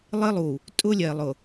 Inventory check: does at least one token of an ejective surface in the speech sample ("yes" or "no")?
yes